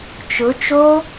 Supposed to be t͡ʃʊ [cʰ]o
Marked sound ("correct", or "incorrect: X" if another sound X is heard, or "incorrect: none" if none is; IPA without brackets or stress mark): incorrect: t͡ʃ